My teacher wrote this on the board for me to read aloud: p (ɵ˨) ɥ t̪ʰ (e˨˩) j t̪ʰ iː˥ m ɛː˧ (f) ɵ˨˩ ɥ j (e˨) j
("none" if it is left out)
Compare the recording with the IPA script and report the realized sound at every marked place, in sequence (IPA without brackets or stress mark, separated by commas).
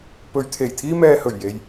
ɵ˨, e˨˩, h, e˨